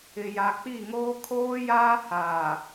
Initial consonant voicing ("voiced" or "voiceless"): voiced